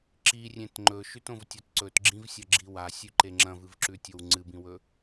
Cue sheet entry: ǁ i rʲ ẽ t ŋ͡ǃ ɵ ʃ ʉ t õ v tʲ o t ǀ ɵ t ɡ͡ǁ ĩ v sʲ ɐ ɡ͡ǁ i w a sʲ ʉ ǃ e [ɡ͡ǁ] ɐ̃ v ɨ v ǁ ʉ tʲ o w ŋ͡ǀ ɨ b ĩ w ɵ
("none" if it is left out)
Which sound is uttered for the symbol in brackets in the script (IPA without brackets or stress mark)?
ŋ͡ǁ